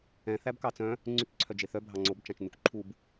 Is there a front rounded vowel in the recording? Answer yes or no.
yes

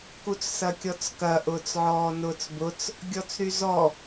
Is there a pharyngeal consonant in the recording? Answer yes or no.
yes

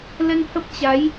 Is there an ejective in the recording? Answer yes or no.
no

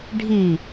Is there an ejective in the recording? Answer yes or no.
no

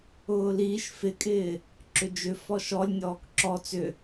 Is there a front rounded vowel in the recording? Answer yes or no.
yes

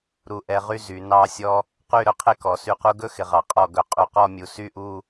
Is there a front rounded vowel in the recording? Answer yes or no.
yes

